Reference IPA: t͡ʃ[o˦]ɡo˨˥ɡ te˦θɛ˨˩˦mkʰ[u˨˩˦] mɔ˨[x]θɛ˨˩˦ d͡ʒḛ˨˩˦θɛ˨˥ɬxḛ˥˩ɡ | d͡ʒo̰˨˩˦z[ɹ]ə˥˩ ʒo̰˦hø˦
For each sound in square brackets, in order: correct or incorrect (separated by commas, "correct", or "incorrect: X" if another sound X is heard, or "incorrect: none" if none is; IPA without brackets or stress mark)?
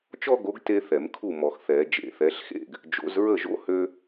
incorrect: ɔ˦, incorrect: u˥˩, correct, correct